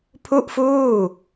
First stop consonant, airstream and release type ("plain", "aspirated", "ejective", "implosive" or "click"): aspirated